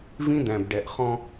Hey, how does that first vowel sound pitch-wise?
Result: high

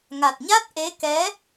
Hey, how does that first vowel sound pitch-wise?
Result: low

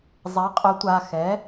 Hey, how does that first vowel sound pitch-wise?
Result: rising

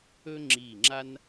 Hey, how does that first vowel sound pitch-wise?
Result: high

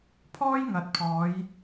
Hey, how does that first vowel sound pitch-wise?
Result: high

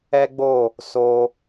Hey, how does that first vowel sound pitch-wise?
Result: high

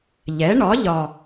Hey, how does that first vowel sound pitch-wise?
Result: rising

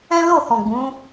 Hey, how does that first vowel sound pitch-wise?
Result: high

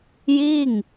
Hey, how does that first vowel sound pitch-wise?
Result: falling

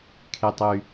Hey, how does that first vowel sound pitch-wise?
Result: high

